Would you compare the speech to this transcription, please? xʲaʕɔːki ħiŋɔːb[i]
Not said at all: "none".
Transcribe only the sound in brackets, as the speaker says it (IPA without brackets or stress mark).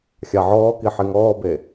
e